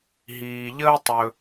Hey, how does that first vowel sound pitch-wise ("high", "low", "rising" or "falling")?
low